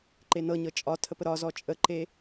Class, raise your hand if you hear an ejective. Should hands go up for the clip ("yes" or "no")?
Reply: yes